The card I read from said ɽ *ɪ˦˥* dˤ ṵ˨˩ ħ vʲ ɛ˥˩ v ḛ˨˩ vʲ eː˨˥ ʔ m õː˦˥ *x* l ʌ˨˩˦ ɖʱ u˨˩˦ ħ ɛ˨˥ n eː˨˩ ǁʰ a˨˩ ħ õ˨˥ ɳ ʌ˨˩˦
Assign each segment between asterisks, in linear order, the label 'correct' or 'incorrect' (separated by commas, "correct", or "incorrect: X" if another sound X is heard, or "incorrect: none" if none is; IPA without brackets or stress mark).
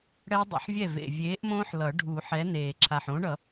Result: incorrect: ɛ˦˥, incorrect: ħ